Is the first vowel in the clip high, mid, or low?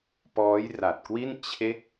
mid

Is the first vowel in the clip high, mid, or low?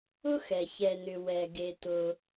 high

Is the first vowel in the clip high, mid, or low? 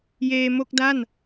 mid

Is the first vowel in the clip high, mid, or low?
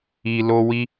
high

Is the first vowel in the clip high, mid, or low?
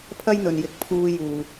low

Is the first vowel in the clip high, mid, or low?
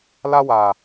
low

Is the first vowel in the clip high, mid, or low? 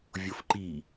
mid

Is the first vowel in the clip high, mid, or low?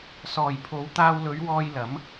mid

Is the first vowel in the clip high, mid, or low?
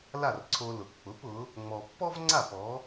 low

